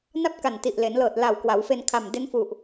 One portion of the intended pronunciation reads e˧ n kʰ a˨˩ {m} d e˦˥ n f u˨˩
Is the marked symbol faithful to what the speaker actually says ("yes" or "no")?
yes